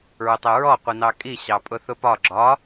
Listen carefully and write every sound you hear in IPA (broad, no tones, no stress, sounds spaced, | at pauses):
ɹ ʊ tˤ ɜ ɹ ɔ qʷ i n ɑ kʼ i ɕ ɑ pʼ ʊ θ ʊ p ɒ ɡ͡ǁ ɒ